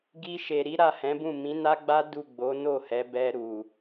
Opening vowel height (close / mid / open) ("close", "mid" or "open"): close